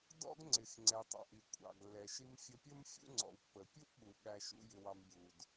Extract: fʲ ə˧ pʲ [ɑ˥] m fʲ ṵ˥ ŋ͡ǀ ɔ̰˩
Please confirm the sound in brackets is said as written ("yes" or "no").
no